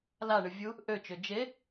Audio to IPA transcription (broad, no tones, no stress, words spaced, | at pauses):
laɳɨ vʲu | ʔøt͡ʃø d͡ʒe